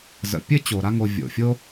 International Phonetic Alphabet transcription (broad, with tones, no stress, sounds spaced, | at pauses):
z ə̰˨ pʲ ɘ˥ t͡ɕ o˩ ɾ a˦ ŋ o˨ vʲ o̰˩ fʲ o˦